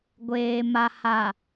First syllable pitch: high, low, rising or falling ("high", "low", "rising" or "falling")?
low